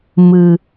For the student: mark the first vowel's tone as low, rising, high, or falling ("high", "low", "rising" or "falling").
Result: low